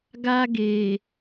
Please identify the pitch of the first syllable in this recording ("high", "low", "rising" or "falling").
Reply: high